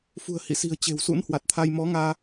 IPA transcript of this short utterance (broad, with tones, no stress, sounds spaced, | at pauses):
f ṳ˨˩ ə̯ h ḭ˧˨ s i̤˨˩ ə̯ t͡ɕ e̤˨˩ w s ṵ˧˥ n h w a˨˩ t̚ t̪ʰ a˧ j m ɔ˨˦ ŋ aː˧